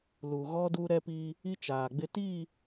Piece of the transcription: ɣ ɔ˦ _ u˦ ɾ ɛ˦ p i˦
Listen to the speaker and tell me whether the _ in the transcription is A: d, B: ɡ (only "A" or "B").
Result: A